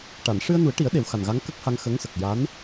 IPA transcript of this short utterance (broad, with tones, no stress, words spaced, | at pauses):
ʈa˨˩˨n ʂɨ˧ə̯nu˨˩˦ə̯ʈi˨˩˦ə̯ ɗe˨˩˦wxa˨˩nɣa˧˥ŋ kə˦˥k̚ha˧ŋ xə˧˥ŋsə˨˩k̚ ja˧˥n